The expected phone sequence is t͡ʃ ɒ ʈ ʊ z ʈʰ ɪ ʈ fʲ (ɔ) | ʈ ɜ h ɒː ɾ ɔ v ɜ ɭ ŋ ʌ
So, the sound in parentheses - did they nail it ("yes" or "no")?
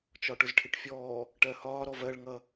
no